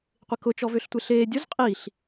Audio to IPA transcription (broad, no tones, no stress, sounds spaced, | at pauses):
qʷ ɪ k ʊ t͡ʃ ɔ v ø ɬ tʷ e ɬ eː dʲ ʊ z qʼ i ɬ